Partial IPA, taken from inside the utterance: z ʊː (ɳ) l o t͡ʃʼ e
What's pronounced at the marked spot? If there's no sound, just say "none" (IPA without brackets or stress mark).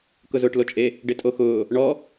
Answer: ʈ